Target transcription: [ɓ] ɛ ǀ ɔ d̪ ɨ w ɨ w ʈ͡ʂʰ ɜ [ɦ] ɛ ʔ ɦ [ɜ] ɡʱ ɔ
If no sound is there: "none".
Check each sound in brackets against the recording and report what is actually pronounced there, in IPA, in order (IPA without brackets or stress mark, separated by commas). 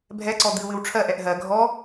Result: bʱ, ʔ, ɜ